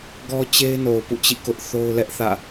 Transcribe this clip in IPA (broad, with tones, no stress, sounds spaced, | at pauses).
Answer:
ɡ ɔ˦ t͡ɕ e˦ ɪ̯ n o˨ ʊ̯ p ṵ˦˨ t͡ɕ ḭ˦˨ k ʊ˦ ʔ θ o˦ ʊ̯ l ɛ˦ ʔ θ ä̰˦˨